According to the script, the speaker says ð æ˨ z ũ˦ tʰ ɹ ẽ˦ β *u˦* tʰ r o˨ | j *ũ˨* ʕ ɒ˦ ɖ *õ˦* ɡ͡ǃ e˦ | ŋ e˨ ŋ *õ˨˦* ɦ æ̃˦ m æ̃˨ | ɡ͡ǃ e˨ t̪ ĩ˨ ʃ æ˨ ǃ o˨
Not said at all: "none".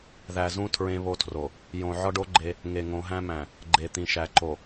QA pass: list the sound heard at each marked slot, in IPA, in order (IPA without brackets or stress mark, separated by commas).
o˦, õ˨, o˦, õ˨˦